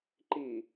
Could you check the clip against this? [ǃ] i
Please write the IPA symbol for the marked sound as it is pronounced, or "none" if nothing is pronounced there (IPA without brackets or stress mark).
ǃ